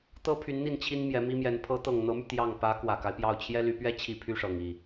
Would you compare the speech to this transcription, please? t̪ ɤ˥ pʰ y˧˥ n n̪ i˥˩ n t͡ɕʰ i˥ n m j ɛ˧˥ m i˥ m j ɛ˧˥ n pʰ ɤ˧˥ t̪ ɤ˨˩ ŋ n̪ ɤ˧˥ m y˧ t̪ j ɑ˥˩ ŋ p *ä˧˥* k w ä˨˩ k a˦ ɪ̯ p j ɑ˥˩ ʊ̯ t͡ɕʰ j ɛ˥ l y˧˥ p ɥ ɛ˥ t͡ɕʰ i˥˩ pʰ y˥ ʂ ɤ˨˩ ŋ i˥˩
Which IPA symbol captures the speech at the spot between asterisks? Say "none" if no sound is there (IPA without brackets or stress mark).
ä˧˥